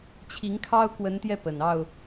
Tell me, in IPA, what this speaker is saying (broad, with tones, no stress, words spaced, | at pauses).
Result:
t͡ɕʰi˨˦ŋkʰɑ˦ʊ̯ kwə˨˦nt̪jɛ˧ pə˨˩n ɑ˥˨ʊ̯